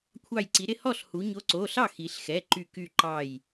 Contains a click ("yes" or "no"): yes